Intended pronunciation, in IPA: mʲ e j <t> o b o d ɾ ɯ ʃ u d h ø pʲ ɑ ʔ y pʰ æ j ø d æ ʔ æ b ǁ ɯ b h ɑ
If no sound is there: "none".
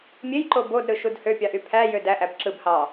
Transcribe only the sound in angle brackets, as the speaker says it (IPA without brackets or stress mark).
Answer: ǃ